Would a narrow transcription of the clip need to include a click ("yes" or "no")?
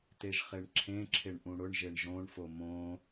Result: yes